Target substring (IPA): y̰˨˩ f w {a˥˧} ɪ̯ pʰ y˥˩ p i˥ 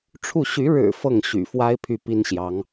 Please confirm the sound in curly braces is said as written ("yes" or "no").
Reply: no